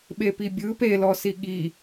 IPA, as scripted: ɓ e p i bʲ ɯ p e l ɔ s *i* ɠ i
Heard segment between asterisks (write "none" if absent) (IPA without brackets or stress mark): i